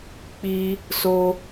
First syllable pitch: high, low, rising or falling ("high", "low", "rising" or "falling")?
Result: high